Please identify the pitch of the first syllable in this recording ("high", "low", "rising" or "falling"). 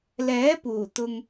rising